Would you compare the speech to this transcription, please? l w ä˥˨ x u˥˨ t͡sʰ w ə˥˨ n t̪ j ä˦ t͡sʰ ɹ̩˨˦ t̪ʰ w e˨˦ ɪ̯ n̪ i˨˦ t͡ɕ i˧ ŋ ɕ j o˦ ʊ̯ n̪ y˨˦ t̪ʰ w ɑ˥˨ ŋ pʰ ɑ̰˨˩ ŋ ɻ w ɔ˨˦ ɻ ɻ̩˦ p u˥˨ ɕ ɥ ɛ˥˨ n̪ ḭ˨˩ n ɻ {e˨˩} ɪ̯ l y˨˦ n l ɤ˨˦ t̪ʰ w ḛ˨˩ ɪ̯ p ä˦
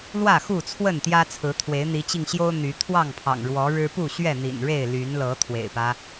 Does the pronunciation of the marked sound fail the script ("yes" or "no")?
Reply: yes